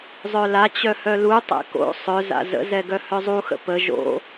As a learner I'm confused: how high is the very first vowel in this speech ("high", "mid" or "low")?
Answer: mid